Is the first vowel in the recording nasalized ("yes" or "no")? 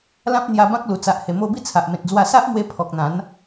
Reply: yes